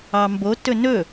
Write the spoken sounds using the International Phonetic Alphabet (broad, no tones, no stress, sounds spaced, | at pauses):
ɑ m b o t ɵ n ɵ